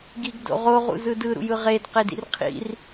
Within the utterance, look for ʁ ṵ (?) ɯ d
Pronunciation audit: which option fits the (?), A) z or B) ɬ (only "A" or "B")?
A